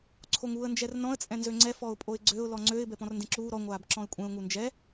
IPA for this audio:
ǀʰ o ŋ uː ə̯ n d͡ʒ ɛ r n ɔ̃ ə̯ t͡sʼ ɛ̃ n z ø ŋ͡ǀ ɛ f ɔ ʊ̯ pʼ o ɪ̯ ɡ͡ǀ ø ʊ̯ l ɔ ŋ͡ǀ ø ɪ̯ b ɛ p ɔ̃ r n d ẽ ǁ uː ɾ ɔ ŋʷ aː b ǁ ɔ̃ ɪ̯ kʷʼ ɛ̃ ʊ̯ ŋ u n d͡ʒ ɛ

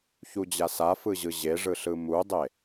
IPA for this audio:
ç u d͡ʑ a s a f ɯ ʑ ɯ ʑ e ʐ ɯ ɬ ɯ m u dˤ e

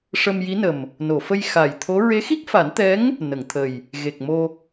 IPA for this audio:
ʂ ə˧ m j i˧˥ n ə˨˩ m | n o˨˩˨ f ə˧ j x a˨˩ j t̪ʰ o˧˥ ɹ e˧˥ x i˦˥ k̚ f a˨˩˦ n t̪ ɛ˧˥ ŋ | n ə˨˩˨ ŋ t̪ʰ ə˨˩ j | ɣ e˨˩ k̚ m o˧

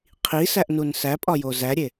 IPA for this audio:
qʰ i s æ ʔ n u n s æ pʼ ɒ j o z æ ɾʲ e

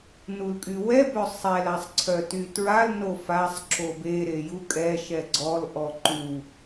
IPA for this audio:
n u l kʼ y w ɛ b œ sˤ ɛ l a sˤ ǀʰ œ t y t ɹ a l n o f a sˤ ǁ o b e ɾ e j u kʼ ɛ ʃ ɛ ɡ͡ǀ ɔ l ʔ ɔ ǃ u

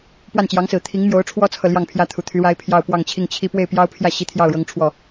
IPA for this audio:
p w a˥˩ n t͡ɕ j ɑ˧˥ ŋ s ɹ̩˨˩ t̪ʰ i˧˥ ŋ m j o˧˥ ʊ̯ ʈ͡ʂʰ w ɔ˥ t͡sʰ ɤ˨ l j ɑ˥˩ ŋ pʰ j ä˥ t̪ʰ u˨˩ t̪ʰ y˧˥ ɻ a˥ ɪ̯ pʰ j ɑ˥˧ ʊ̯ p w ɑ˥˧ ŋ t͡ɕʰ i˥˩ ŋ t͡ɕʰ i˥ p w e˥˩ ɪ̯ p j ɑ˥ ʊ̯ pʰ j ä˥˩ ɕ i˥ t̪ʰ j ɑ˥˩ ʊ̯ ɻ ɤ˥ ŋ ʈ͡ʂʰ w ɔ˥˩

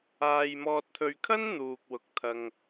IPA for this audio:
aː˨ j m ɔː˨ t̚ t̪ʰ ɵ˨ ɥ kʰ ɐ˥ n n̪ uː˨ k̚ w ʊ˨˥ k̚ t̪ʰ ɐ˧ ŋ

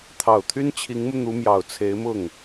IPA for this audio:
t̪ʰ ɑ˨˩ ʊ̯ t̪ʰ y˥ n t͡ɕʰ i˧˥ ŋ m u˧ n̪ u˧˥ m j ɑ˨˩ ʊ̯ t͡sʰ e˧˥ ɪ̯ m ʊ˥˩ ŋ

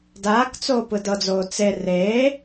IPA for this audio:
d aː k t͡s oː p ɯ d ɤ d͡z oː t͡s e r eː

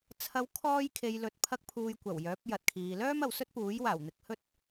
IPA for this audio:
t͡sʰ ɐ˧ w kʰ ɔː˥ j kʰ e˧ j l ɵ˧ t̚ pʰ ɐ˥ k̚ pʰ uː˧ j kʷ ɐ˨˩ w j œː˨˥ p̚ j ɐ˨ t̚ kʰ iː˨ l œː˥ m ɐ˨ w s ɵ˥ t̚ p uː˨˥ j w aː˨˩ w n̪ ɪ˨˥ k̚ h ɵ˥ t̚

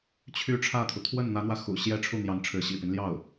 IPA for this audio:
t͡ɕʰ y˧˥ ʈ͡ʂʰ ä˥˩ t̪ʰ u˩ t̪ʰ w ə˥˩ n n̪ ä˧˥ n̪ w ä˧ x ṵ˨˩ ɕ j ɛ˥˧ ʈ͡ʂʰ u˥˩ n̪ j ɑ˧˥ ŋ ʈ͡ʂʰ ɻ̩˧˥ ɕ ḭ˨˩ p i˦ n l j ɑ˥˩ ʊ̯

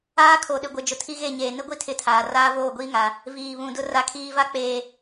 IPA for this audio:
aː˦ kʰ o˨ ɗ ɪ˨ ɡʷ ɪ˨ d͡ʒ ʊ˨ tʰ i˦ ɣ e˦˨ ɲ eː˨ n ɪ˦ ɡʷ i˦ tʰ ɪ˦ tʰ aː˨ r aː˦ v oː˦˨ ɡʷ iː˦ ŋ a˨ | v iː˨ β ũ˨ d ʊ˦ r a˨ kʰ iː˨ v a˦ k͡p eː˨

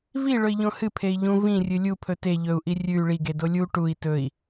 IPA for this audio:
v i ɭ ɵ i̯ ʎ õ h ɨ pʰ e i̯ ʎ ũ v ĩ rʲ ɨ lʲ u pʰ ɵ t e ʎ ɵ u̯ ʔ i rʲ ʉ y̯ ɭ i ɡ e d o lʲ u ʈ u i̯ t ɵ i̯

